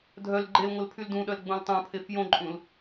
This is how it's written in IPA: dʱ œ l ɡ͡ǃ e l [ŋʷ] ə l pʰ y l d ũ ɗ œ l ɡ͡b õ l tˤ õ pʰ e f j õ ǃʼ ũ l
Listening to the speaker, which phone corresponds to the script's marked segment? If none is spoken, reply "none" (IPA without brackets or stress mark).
ŋʷ